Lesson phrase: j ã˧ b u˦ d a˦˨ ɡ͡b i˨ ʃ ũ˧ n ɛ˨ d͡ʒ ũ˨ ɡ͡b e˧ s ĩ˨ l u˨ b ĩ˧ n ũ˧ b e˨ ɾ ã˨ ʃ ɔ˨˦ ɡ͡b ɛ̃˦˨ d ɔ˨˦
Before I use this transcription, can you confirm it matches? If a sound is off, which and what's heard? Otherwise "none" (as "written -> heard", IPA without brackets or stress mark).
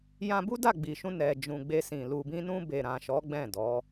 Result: none